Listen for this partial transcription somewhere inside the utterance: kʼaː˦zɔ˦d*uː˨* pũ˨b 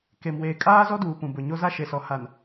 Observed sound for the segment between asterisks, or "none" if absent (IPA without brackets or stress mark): uː˨